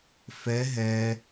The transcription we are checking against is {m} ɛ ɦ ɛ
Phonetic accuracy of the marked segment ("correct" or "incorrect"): incorrect